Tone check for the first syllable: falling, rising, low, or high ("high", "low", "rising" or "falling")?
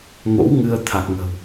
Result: rising